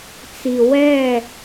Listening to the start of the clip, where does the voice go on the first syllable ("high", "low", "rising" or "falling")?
low